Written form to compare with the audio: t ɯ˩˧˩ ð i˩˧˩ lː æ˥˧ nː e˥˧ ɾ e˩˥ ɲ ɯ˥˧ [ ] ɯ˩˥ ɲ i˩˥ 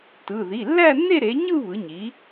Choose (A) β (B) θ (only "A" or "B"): A